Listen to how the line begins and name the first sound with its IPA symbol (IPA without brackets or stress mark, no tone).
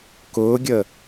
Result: k